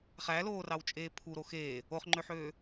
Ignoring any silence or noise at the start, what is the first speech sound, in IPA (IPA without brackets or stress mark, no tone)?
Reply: χ